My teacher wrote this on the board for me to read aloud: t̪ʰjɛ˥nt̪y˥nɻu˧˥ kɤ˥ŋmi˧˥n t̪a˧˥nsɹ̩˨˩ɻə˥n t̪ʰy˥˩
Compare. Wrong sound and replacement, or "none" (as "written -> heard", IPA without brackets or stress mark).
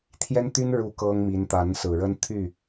none